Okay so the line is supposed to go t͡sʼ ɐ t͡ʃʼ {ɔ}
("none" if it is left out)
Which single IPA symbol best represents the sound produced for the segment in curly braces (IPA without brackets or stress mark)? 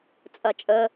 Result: ə